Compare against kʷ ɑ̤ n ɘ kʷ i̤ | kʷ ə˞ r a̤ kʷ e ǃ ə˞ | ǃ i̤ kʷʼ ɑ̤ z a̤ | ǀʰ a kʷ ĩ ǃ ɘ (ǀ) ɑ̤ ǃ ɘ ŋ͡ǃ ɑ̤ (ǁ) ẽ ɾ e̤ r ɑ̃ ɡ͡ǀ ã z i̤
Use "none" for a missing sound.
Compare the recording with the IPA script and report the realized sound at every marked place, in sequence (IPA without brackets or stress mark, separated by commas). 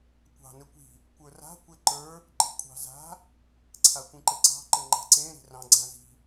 ǀ, ǀ